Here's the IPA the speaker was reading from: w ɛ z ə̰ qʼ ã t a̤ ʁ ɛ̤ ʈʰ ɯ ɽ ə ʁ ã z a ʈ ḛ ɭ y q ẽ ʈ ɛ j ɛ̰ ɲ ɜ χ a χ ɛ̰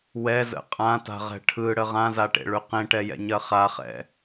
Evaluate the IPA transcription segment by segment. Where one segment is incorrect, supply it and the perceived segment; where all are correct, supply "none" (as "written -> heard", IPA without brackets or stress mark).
none